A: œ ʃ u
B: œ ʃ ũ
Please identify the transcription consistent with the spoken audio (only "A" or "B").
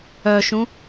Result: B